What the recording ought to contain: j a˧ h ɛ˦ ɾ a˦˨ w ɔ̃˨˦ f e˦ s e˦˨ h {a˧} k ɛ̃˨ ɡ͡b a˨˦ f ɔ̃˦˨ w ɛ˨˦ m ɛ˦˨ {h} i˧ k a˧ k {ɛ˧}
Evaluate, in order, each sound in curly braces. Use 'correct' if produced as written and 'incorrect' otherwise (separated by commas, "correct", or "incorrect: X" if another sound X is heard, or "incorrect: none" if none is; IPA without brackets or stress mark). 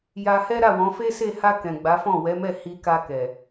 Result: correct, correct, incorrect: ɛ˨